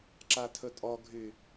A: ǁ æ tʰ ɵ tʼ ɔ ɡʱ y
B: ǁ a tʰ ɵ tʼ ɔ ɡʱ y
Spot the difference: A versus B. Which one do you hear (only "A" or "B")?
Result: B